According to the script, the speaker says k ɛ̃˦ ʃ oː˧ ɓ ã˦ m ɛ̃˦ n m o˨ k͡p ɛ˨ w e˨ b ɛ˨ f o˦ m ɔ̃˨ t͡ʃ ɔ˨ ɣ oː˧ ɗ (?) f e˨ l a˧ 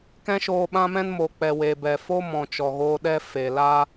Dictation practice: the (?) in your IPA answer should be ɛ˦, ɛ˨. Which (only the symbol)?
ɛ˦